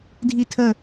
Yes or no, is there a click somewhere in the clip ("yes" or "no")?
no